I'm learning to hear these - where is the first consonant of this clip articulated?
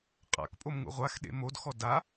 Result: uvula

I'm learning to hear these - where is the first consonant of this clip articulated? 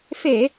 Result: lips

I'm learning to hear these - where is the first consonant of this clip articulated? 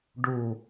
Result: retroflex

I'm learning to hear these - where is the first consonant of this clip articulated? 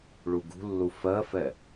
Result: retroflex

